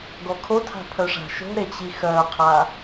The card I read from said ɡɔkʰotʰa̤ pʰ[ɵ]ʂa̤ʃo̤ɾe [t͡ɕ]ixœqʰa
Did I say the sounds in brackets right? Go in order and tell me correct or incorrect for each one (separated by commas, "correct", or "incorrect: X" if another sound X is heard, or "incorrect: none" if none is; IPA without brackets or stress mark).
incorrect: œ, correct